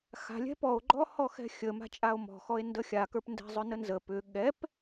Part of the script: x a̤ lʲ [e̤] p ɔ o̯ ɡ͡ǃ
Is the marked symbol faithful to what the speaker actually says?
no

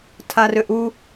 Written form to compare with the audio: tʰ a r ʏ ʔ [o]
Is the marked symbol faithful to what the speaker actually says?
no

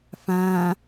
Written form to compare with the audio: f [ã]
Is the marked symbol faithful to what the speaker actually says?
yes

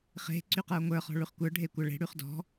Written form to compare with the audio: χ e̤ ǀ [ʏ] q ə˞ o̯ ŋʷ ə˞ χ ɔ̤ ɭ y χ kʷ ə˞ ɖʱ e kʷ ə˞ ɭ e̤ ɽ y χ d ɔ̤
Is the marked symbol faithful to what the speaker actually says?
no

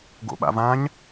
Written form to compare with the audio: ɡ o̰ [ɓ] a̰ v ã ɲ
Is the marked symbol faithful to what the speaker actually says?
yes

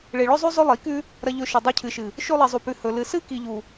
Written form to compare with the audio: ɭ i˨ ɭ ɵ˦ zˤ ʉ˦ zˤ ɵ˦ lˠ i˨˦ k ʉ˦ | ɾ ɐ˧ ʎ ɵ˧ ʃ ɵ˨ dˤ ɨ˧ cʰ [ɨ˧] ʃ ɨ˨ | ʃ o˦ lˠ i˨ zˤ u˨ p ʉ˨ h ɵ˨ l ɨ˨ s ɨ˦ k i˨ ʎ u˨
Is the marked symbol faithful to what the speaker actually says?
no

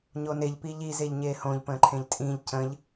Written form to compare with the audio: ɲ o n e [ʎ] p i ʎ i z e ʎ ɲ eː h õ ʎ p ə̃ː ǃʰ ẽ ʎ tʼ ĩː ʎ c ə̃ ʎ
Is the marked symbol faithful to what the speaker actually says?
yes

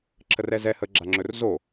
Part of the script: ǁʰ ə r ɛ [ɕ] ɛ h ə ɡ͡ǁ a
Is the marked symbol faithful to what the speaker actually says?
no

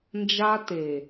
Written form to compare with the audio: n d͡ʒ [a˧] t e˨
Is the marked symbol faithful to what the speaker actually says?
yes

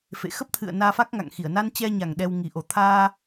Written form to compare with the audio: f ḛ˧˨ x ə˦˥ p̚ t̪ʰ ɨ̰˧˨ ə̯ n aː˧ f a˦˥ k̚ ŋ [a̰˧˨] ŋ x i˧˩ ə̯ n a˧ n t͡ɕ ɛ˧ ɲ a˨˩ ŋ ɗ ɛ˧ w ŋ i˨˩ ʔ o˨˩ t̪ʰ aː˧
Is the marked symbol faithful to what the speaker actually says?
yes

